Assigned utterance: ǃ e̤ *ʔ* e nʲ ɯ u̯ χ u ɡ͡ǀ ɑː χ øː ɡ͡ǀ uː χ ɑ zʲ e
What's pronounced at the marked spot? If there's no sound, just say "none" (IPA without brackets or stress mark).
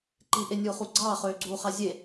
ʔ